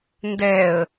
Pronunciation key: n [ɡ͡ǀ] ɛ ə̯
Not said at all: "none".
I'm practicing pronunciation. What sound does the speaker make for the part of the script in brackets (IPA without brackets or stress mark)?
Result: d